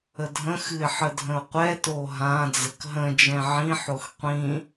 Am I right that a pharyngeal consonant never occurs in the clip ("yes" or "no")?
no